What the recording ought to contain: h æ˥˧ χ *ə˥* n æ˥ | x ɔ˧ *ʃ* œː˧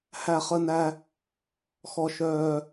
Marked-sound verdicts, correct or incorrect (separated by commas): correct, correct